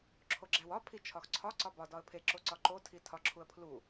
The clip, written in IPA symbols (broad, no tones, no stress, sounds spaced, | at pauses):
ǁʰ o ɡ͡ǁ æ w ɒ pʰ i t͡ʃʰ ɒ x ǀʰ ɒ ǀ ɒ b ɒ d ɒ ə̯ pʰ e ǁ o ǀ ɒ ǃ o tʰ i tʰ ɒ ǁʰ u ə̯ pʰ l u